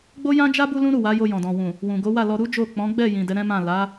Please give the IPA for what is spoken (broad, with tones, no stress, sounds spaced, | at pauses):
ɡ͡b o˦ j ã˦ d͡ʒ a˦ b u˦ l ũ˦ ɾ u˦˨ w a˨˦ j o˧ j ɔ̃˨ d ɔ̃˨ w ũ˨ | w ũ˨ ɡ o˨˦ w a˦˨ l ɔ˧ ɾ u˦ d͡ʒ o˦˨ k͡p ɔ̃˨˦ ɡ͡b ɛ˦˨ j ĩ˨ d ɛ˨˦ ɾ ɛ̃˦ m ã˦˨ l a˨˦